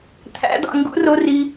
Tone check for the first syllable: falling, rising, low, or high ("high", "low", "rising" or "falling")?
rising